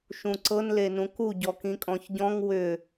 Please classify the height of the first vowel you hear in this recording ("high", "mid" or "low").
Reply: high